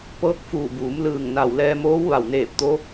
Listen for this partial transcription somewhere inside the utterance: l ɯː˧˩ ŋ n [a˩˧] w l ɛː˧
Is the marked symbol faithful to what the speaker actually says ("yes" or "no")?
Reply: no